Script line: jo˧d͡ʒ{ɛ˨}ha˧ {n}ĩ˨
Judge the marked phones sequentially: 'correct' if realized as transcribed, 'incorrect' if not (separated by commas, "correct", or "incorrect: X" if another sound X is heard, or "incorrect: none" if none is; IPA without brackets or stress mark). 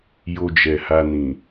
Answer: correct, correct